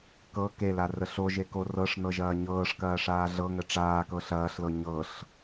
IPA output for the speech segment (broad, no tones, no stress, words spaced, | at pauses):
kɤ kelarə ɬoʒeko rɤʂnɤʒɐː ɲɤːʂkɐːʂaː ɮɤŋə ʈ͡ʂaːkɤ ɬɐːɬlɤ ɲɤɬ